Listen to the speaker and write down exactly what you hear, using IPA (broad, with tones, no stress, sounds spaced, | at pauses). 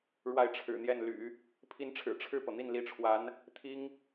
ɻ w a˥˩ ɪ̯ ʈ͡ʂʰ ɻ̩˨˩ n̪ j ɛ˥˩ n l y̰˨˩˦ | pʰ i˧˥ n ʈ͡ʂʰ ɻ̩˨˩ ʈ͡ʂʰ ɻ̩˥˩ p ɤ˩ n̪ i˥˩ n l i˧˥ ʈ͡ʂʰ w a˧˥ n | t̪ʰ i˥ ŋ